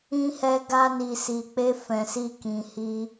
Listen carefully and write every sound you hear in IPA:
ĩ˧ h ɛ˧ ɡ a˧ n i˨ s i˨ k͡p e˧ f ɛ̃˨ s i˧ k ĩ˨ h i˧

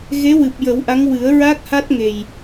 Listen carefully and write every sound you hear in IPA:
ɣ e˧˥ w ɨ˨˩ p̚ j ə˨˩˦ w ʔ a˧˥ ŋ w ɨ˨˩˦ ə̯ ɹ a˦˥ k̚ h a˦˥ t̚ ŋ e˨˩ j

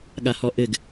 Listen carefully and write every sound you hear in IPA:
ɠ a h ɔ ʔ ɘ ɡ

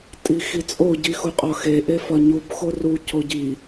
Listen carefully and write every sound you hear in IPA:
tʼ i x i t͡sʼ o ɟ i x u qʼ ɒ x e ʔ e f ɒ ɲ u b x o r u c o ɟ i

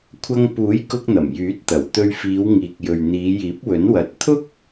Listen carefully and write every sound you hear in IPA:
kʷʰ ɐ˧ ŋ p uː˨˥ j k ʊ˧ k̚ n̪ ɐ˨˩ m j yː˨˥ t̚ t̪ ɐ˨˩ w t̪ ɵ˧ ɥ f iː˨˧ w ŋ iː˨ k̚ j ɵ˨ ɥ n̪ iː˨˧ j iː˨˥ p̚ w ɵ˨˥ n w ɐ˨ t̚ t̪ʰ ʊ˥ k̚

